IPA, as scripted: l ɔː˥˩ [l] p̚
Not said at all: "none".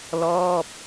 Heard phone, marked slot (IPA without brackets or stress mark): none